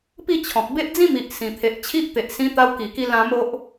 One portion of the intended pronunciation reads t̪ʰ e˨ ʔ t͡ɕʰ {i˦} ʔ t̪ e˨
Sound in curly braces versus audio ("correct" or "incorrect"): correct